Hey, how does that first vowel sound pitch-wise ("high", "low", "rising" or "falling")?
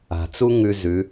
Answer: low